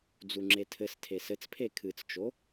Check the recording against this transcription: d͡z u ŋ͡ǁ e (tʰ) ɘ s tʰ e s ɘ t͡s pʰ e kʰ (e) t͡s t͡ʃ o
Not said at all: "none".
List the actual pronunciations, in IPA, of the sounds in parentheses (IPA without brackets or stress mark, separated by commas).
tʰ, ɨ